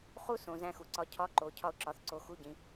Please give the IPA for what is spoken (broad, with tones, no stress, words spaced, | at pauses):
χu˥ sõ˩˧zæ̃˧xu˩ǀɒ˧˥ cʰɒ˧˥ǃo˩˧ cʰɒ˥ʊ̯ǁɒ˧θǀo˧ xu˧˥ɟĩ˩˧